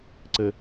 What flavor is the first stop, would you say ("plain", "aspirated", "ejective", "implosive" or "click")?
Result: click